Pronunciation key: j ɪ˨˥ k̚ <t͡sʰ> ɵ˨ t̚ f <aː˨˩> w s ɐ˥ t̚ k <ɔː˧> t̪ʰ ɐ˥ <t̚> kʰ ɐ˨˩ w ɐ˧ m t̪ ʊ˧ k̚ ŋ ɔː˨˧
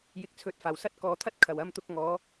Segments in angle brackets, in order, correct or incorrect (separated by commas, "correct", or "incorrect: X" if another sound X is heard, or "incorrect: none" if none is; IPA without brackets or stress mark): correct, correct, incorrect: ɔː˨, correct